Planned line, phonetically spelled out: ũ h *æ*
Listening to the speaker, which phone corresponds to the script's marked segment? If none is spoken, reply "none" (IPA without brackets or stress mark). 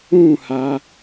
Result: a